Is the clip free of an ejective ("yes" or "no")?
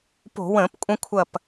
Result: no